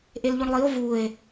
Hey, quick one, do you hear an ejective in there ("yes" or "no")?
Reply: no